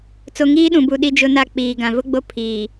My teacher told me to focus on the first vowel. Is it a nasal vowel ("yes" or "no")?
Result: no